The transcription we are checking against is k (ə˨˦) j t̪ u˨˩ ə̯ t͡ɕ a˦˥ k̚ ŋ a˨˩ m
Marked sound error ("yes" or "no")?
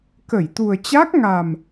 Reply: yes